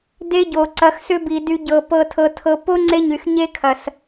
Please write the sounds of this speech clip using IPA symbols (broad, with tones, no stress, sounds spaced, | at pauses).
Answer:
d e˦ ɟ o˨ ǀ ɐ˧ x s ʏ˦ b i˨ d y˧ ɟ ɤ˨ p ɤ˧ tʰ ɤ˧ tʰ ɤ˧ p o˦ ŋ͡ǀ e˦ ɲ y˨ x ɲ e˦ kʰ ɐ˨ s